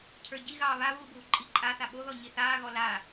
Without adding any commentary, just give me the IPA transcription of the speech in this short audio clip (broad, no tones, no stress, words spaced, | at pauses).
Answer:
cʰə˞ ɟiɣɑː βaβuːbʱu ǃʼi ǃʼaθa ɓoðɔɲi θaːɣɔ la